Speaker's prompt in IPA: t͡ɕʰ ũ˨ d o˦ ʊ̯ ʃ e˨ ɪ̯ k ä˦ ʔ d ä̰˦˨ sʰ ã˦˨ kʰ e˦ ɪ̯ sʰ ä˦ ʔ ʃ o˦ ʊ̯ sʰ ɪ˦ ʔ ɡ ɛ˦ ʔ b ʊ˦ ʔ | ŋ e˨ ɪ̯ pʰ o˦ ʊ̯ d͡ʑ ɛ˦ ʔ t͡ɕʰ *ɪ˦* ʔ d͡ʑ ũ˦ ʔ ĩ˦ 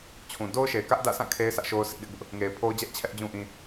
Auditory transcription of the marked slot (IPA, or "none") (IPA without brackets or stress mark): ɛ˦